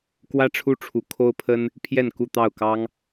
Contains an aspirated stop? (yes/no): yes